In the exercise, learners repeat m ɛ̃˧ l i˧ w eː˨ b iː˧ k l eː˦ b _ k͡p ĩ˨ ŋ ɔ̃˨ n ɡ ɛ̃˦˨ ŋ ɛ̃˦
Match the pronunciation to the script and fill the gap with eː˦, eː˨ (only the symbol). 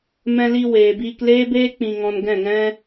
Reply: eː˦